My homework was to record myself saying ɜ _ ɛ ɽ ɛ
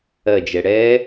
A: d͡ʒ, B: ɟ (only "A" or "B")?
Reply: A